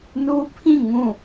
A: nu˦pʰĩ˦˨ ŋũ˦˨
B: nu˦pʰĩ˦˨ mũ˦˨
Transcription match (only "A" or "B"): A